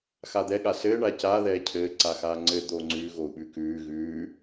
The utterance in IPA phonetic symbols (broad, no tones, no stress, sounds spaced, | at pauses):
x a d̪ ɛ ɠ a s ɘː ɳ aː c aː ð ɛː cʰ ɘː ǀ a x aː ŋ͡ǀ ɘ d̪ oː ŋ͡ǀ ʉː ɣ o u̯ ɓ ʉ k ʉː ɣ ʉː